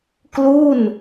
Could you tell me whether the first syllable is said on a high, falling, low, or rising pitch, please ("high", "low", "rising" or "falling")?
falling